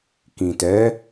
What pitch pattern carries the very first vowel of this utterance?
low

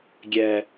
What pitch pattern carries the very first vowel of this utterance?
low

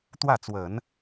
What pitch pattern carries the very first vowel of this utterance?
falling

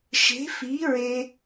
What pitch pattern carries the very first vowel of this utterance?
rising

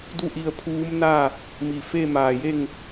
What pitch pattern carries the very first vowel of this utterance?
falling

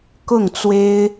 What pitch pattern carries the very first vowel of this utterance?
falling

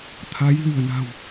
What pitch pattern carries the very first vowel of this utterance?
rising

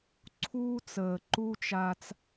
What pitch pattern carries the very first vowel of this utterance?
high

